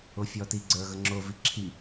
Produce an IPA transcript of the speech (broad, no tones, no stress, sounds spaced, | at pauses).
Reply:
ʊ fʲ ɔ t i ɡ͡ǀ ə˞ ɣ ə ŋ͡ǁ ʊ v i ǁʰ i